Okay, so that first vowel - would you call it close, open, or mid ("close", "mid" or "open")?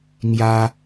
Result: open